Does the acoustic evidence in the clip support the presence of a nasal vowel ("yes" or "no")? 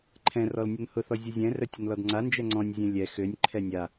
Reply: yes